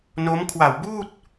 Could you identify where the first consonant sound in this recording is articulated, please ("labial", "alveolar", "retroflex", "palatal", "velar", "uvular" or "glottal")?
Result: alveolar